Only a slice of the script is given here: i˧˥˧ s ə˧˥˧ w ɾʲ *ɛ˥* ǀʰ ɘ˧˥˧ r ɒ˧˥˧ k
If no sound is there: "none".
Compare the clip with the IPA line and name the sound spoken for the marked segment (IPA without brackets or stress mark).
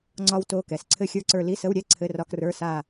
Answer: ɛ˥˧